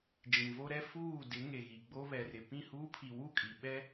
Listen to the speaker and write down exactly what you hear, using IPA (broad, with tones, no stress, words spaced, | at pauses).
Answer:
d͡ʒĩ˨vo˦ɾɛ˦ fuː˦˨ dɪ˨˦ ŋe˨ɣi˨ɡ͡bo˦ βɛ˨rɪ˨ pĩ˦˨huː˦pʰi˨ wu˦˨kʼi˨ɓɛ˦